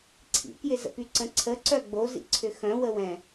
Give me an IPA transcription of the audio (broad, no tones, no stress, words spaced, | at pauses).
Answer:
ǀʰḭkjɪzə̰py ǀə̃ǀʰə ǀœɡ͡bozḭ ǀʰʏxœ̃wəwɛ̃